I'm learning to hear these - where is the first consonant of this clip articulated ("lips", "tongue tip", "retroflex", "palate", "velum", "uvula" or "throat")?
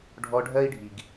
retroflex